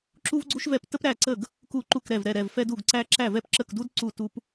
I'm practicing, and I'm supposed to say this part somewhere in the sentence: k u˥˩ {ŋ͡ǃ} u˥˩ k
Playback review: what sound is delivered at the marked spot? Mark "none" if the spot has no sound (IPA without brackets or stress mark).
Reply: ǃ